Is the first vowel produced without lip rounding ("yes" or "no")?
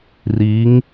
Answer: yes